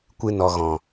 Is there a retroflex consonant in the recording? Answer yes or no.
no